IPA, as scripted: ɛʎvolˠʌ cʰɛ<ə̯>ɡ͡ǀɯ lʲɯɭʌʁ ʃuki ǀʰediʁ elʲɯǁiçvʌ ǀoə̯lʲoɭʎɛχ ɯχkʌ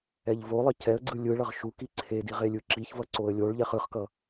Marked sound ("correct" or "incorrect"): correct